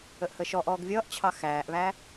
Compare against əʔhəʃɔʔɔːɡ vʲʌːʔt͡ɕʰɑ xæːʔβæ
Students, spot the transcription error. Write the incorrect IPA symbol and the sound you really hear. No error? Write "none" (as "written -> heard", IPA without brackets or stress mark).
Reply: none